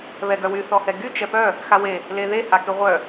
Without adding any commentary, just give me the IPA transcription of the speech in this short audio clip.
βɛɡœwy θɔhɛɡy t͡ʃɛpœ | xawe | leðe hakyʁʷœ

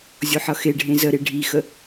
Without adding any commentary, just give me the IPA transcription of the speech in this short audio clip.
zʲoħʌxeɖʱẽ zəɾe ɖʱixə

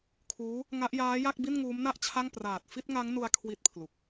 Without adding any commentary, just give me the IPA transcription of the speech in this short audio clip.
kʰuː˦˥ | ŋa˦˥ʔjaː˦˥ja˥˩k̚ bi˥˩nŋuː˦˥mna˥˩ʔt͡ɕʰa˥˩ŋ praː˨˩t̚fi˥˩t̚ŋa˦˥ŋnu˧a̯ kʰwi˦˥t̚pʰlu˨˩k̚

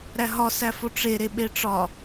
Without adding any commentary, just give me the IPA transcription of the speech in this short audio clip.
ɾæɦɒ sæfoʈ͡ʂe ɾeɓeʈ͡ʂɒ

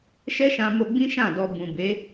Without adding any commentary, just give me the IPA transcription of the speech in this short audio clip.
ʃɛ˦ʃã˧mo˧ɡ͡bĩ˦ ʃã˦˨dɔ˧ bũ˨ be˨˦

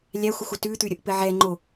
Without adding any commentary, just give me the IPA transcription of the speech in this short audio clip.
lʲæxʷəxʷə tʉt̪ʉɾʲəʔpɘ ʕɛ ŋ͡ǃo

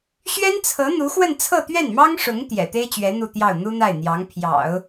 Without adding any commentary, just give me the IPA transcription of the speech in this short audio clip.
ɕɥɛ˥nt͡sʰɤ˧˥ n̪u˧˥xwə˥˧n t͡sʰɤ˥˧t̪ɥɛ˥˩nmɑ˥ŋʂʊ˧˥ŋ t̪jɛ̰˨˩ t̪e˥ɪ̯t͡ɕɥɛ˧˥ n̪u˥˧t̪jɑ˥˩ʊ̯ n̪u˥n̪a˥˩ɪ̯n̪jɑ˧˥ŋ pʰjɑ̰˨˩˦ʊ̯

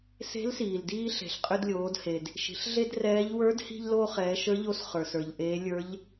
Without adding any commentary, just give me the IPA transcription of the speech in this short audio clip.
se̤˧˥lsiː˩ldiː˧ ɬe̤˩ɬqʼʏ˧dlʲoː˩˧dhe˩d | ʃi̤˩˧ɬɮe˥drɛː˧˥ʎ wə˞˧˥dhi̤˧ʎlo˧ χɛː˩˧ʃə˞˧˥ʎo˧s χə˞˩sə˞˩ʎʔeː˧˥ lʲə˞˧˥ʎ

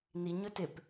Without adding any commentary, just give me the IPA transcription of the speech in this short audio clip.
ni ɲɵtɪp

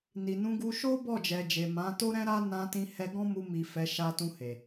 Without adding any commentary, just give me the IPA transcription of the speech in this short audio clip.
ni˨nũ˧ɡu˧ ʃo˦ bɔ˦˨d͡ʒɛ˨d͡ʒe˨ mã˨˦ to˦ɾɛ̃˦ɾa˦ nã˧tĩ˧hɛ˧ ɡɔ̃˦mu˧mi˨ fɛ˨˦ʃa˧tũ˧he˨

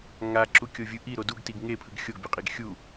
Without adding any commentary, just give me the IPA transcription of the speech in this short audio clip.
ŋaǁukʲo vʲɯ ʔiɾo duɡtiɡ ŋepʰɯɡ xʲoɡbʲoqʼiɡ xʲu

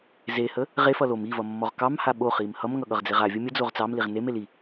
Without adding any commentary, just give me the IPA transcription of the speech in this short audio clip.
zehə | ʁefʌ lom ivʌmːɔʁ kɑmha ɓoχim hʌmŋʌɠʌʁd͡zeʁ avʲʌ mʲəd͡zoʁ t͡sɑmliʁ neme li

